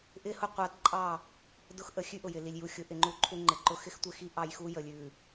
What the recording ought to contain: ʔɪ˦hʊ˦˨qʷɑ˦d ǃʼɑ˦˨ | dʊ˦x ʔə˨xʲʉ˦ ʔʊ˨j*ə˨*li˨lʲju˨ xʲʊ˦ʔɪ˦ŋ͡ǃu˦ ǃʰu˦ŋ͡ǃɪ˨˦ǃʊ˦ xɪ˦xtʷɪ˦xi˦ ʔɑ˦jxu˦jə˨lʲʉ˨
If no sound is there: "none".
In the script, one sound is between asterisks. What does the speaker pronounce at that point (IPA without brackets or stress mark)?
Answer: ɪ˨